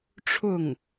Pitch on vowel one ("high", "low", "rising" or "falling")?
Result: falling